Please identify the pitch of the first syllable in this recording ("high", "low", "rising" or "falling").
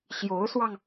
rising